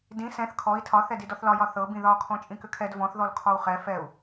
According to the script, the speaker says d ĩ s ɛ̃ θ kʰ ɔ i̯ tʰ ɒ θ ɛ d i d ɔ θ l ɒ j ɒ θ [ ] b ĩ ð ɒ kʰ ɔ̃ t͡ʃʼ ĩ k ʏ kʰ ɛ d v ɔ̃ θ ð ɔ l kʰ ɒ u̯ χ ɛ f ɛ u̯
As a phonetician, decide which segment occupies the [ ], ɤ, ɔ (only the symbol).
ɤ